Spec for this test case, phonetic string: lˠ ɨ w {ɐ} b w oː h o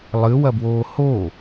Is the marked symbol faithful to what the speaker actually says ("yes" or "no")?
yes